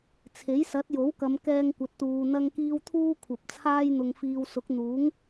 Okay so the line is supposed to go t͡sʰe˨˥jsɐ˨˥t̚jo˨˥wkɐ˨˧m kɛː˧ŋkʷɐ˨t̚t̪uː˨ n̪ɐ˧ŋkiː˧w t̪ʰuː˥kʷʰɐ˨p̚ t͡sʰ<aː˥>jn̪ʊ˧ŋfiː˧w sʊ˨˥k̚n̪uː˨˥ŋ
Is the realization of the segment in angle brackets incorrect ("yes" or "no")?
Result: no